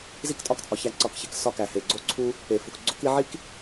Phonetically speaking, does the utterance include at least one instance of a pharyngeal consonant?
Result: yes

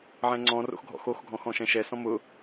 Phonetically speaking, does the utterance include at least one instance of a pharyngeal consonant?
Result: yes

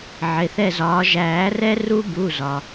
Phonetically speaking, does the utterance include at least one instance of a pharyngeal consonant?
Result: yes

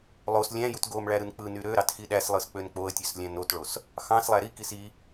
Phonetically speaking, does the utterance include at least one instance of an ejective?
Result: no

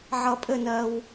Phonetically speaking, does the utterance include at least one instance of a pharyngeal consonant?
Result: yes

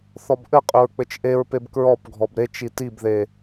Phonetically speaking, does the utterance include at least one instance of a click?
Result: no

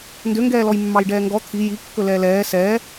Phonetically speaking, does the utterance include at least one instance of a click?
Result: no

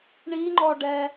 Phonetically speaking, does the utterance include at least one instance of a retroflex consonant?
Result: yes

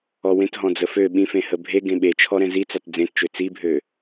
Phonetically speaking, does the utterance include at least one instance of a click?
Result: no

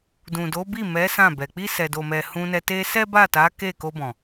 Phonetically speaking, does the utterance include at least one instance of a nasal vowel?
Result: yes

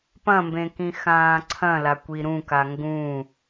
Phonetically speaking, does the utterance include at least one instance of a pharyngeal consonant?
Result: no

